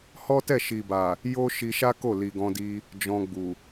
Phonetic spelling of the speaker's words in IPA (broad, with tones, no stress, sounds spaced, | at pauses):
h ɔ˦ t ɛ˦˨ ʃ i˨ b a˨ | j o˦ ʃ i˧ ʃ a˦ k o˦˨ l i˨ ɡ ɔ̃˧ d i˧ | d͡ʒ ɔ̃˧ ɡ͡b u˨